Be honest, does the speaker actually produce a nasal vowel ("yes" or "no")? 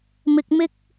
no